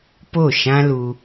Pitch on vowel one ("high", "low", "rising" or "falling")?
falling